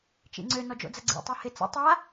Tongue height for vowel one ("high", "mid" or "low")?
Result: high